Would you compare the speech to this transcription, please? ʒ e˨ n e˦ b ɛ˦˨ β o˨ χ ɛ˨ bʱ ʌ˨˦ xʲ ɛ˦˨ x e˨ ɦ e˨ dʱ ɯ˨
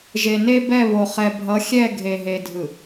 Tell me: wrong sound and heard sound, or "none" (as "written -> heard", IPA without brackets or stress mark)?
x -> ɡʱ